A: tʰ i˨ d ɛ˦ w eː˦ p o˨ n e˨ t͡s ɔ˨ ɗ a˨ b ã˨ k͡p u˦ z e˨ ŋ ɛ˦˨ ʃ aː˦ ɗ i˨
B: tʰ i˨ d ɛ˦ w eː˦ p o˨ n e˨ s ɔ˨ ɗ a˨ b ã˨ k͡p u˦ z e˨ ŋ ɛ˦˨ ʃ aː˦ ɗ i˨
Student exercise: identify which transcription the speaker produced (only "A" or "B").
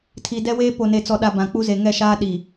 A